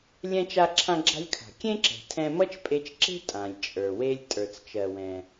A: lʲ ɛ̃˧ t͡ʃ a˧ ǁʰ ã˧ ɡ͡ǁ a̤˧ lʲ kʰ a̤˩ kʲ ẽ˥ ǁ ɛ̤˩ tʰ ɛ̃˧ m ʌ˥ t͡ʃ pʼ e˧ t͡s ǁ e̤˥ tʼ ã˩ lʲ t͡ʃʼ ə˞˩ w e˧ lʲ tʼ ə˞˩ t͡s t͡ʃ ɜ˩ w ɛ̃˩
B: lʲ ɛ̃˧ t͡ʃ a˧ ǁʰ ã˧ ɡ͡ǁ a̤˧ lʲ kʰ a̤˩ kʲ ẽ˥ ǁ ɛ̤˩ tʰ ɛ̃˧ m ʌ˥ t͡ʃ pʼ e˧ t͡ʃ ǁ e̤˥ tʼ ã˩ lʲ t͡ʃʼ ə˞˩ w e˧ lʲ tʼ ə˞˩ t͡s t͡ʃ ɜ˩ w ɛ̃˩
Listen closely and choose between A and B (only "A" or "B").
B